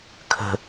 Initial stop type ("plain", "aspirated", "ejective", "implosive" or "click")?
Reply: aspirated